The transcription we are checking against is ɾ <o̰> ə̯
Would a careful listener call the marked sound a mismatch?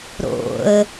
no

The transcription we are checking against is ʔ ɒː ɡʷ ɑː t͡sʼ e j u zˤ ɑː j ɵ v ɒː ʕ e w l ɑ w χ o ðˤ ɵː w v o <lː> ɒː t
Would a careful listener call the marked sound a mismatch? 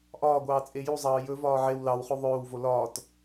yes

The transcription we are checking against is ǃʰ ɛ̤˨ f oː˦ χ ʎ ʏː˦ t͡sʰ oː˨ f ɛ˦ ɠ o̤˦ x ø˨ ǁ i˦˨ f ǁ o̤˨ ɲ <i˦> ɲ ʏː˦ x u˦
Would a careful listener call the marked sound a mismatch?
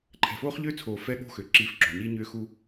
no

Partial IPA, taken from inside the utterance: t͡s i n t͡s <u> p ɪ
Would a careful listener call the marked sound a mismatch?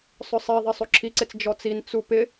no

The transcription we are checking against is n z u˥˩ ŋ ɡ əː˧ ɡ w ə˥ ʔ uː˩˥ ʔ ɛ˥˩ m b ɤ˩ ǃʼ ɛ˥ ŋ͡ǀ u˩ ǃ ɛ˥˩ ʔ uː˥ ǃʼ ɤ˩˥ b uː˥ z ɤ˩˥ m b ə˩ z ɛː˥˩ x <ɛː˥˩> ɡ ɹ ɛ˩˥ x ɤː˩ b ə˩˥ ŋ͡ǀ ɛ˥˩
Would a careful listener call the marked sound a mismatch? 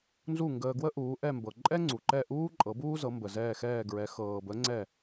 no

